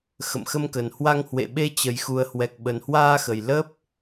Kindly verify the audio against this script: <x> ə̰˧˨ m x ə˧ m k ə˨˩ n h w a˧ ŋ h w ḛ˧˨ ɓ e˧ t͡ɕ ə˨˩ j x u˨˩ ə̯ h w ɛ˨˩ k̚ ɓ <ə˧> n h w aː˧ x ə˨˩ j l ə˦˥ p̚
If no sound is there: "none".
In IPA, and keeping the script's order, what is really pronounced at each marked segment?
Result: x, ə˨˩

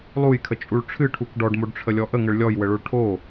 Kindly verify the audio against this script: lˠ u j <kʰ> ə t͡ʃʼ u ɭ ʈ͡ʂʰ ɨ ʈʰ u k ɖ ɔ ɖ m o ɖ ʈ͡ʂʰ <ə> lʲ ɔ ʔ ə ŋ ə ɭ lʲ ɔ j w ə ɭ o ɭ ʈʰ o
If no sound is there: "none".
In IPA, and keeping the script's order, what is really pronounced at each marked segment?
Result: kʰ, ə

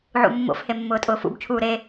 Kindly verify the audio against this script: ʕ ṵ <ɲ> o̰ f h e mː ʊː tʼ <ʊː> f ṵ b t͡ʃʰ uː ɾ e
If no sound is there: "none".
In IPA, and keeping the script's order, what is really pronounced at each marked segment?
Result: mː, ʊː

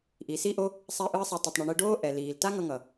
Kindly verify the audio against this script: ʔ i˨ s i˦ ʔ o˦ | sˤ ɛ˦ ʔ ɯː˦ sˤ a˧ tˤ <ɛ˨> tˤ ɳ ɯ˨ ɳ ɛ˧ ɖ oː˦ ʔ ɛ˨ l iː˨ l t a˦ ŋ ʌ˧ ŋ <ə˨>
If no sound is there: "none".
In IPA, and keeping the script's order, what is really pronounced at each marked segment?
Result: ɛ˨, ʌ˨

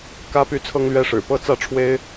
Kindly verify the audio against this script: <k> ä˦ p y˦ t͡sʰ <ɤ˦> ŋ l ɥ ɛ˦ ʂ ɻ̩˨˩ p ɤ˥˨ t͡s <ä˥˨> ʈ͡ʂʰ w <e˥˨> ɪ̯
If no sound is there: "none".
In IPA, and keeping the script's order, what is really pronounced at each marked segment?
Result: k, ɤ˦, ä˥˨, e˦

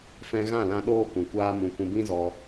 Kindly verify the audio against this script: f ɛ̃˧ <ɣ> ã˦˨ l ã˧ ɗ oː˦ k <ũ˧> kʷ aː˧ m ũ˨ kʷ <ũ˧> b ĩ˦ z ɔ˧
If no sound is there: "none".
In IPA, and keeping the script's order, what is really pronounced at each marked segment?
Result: ɣ, ũ˨, ũ˧

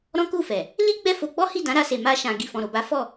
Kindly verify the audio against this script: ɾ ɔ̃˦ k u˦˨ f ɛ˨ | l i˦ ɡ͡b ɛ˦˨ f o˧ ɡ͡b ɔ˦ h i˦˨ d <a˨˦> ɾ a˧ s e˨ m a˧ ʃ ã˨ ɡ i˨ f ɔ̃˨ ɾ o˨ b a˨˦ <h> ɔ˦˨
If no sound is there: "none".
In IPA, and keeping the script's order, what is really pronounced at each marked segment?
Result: ã˨˦, f

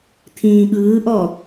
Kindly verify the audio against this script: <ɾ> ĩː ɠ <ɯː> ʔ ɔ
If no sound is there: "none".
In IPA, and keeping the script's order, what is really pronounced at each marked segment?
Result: t̪ʰ, ɯː

